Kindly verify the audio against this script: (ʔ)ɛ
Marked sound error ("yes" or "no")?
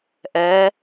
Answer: no